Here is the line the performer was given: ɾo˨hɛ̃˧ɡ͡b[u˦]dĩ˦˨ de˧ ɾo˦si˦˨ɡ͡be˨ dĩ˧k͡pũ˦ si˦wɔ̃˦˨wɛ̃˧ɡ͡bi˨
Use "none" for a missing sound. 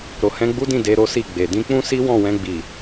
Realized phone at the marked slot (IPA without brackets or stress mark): u˦